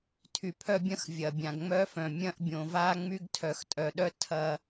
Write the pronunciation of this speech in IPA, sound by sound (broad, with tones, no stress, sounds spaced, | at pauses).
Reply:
tʰ y˨ pʰ œ˦ bʲ ɐ̃˦ x vʲ ɐ˨ bʲ ã˨ ɡ ŋ͡m œ˦ f œ̃˨ mʲ ɐ̃˦ ʔ bʲ õ˨ v a˦ ŋ͡m y˦ ɡ tʰ œ˨ x tʼ œ˨ ɗ œ˦ tʰ ɐ˦